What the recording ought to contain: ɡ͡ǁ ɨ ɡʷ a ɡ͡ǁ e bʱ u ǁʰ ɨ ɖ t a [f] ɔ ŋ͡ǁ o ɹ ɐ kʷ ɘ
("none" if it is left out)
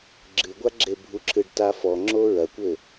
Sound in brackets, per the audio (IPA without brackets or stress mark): f